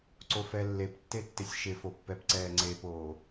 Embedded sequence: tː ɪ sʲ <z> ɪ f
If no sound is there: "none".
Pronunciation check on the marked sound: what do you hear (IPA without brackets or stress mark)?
ʃ